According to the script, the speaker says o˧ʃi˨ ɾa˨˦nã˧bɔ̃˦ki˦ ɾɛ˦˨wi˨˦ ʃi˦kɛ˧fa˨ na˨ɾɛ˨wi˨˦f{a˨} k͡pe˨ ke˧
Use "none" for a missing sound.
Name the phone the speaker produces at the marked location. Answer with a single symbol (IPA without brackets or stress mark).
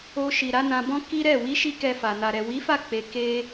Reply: a˦˨